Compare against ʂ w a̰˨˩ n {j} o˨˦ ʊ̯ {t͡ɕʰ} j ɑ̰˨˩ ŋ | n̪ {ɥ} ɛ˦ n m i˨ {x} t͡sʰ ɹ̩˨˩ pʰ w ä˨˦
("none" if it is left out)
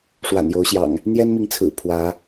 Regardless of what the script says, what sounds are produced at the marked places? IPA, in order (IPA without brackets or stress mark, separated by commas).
j, ɕ, j, ŋ